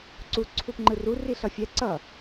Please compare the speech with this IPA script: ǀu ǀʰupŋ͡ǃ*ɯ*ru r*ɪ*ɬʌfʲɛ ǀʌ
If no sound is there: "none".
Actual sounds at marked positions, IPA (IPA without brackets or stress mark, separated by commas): ɯ, i